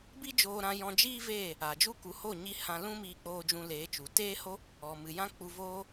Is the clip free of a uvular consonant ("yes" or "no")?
yes